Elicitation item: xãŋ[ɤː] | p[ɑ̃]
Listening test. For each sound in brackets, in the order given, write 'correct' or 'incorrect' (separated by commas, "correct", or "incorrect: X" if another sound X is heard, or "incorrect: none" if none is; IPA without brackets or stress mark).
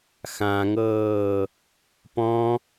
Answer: correct, incorrect: ɔ̃